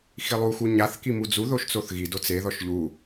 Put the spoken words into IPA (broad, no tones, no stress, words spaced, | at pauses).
xilˠu xuɲaθ kimud͡zu ðoʃt͡soθɣi dot͡se ðɔʃʎu